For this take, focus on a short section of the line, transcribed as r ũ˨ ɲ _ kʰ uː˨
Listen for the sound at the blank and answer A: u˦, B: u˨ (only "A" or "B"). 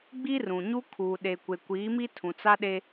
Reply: A